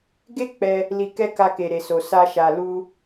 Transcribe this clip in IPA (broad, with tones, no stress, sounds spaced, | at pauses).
ɡ e˦ k͡p ɛ˧ | l i˧ k ɛ˦ k a˧ k e˨ ɾ e˨ s o˨ s a˧ ʃ a˨ l u˧